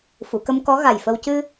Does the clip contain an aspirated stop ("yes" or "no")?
no